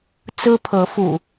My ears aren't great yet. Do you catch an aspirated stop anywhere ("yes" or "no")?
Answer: yes